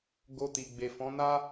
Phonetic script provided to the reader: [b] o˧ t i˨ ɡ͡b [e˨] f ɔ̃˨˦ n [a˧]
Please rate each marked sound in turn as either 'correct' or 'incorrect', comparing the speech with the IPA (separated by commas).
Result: incorrect, correct, incorrect